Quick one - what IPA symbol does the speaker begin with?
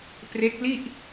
p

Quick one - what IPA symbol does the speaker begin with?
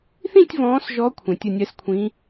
θ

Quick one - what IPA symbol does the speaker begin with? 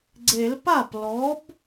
ɡ͡ǀ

